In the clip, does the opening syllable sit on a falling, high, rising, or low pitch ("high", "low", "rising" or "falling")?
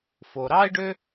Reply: low